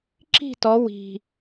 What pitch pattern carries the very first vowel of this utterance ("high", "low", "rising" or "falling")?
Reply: falling